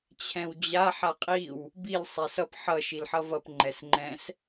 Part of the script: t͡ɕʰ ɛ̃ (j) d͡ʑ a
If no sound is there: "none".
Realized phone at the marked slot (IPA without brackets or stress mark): w